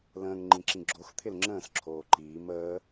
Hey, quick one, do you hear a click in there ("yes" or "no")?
yes